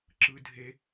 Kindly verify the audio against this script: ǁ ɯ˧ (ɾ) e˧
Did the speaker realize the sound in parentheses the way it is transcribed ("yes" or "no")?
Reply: no